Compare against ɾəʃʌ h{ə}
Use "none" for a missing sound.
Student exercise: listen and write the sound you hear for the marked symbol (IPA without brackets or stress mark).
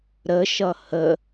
ə